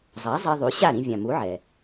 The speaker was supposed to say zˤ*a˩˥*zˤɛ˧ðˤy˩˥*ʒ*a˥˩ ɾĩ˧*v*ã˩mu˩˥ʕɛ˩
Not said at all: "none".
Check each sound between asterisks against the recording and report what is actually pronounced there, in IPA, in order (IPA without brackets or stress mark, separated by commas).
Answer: a˩˥, ɕ, vʲ